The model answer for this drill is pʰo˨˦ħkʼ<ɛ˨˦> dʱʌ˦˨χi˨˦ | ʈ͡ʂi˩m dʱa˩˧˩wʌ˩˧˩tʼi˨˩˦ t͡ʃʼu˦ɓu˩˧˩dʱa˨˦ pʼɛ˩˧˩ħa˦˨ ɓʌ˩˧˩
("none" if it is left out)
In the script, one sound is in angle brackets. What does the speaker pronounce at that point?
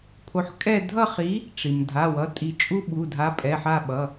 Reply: ɛ˦˨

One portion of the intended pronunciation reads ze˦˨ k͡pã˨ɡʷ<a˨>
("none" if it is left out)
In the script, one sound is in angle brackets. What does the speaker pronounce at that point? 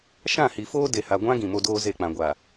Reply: aː˨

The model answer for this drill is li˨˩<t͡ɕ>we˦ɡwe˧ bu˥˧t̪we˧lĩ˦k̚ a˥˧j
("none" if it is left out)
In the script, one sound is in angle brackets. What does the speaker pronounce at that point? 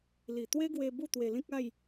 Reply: t̪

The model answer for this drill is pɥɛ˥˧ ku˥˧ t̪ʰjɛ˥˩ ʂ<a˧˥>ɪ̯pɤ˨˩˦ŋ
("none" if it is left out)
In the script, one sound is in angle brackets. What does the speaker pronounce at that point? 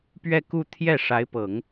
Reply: a˧˥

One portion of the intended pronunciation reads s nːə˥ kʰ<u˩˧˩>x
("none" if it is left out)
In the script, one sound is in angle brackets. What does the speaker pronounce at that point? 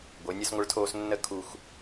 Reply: u˦˨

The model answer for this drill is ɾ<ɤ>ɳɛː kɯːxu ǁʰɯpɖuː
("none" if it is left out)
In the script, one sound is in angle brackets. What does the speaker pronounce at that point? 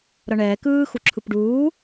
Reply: ɤ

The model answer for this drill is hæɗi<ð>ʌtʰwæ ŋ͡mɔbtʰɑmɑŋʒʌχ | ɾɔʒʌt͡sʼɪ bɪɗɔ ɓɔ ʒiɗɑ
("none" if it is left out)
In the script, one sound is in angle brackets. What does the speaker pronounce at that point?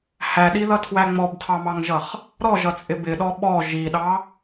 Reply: ð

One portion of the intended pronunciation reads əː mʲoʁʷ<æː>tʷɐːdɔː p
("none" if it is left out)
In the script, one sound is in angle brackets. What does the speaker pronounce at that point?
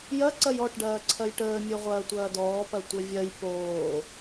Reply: ɐː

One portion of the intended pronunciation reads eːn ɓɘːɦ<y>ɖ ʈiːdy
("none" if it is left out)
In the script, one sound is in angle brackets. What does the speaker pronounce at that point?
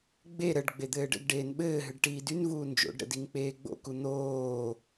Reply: ɨ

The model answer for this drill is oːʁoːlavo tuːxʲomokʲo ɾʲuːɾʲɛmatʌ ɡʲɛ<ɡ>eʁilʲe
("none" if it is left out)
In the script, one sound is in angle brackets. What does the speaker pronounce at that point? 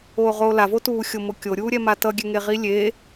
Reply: ŋ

